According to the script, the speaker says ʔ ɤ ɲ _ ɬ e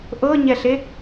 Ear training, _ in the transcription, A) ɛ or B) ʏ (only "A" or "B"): A